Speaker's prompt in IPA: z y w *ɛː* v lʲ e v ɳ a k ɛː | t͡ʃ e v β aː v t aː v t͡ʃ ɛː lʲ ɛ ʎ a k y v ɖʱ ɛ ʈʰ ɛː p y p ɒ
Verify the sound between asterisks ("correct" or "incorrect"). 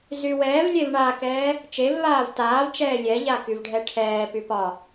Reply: correct